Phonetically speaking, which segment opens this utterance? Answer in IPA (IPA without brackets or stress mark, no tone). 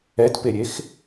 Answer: ɛ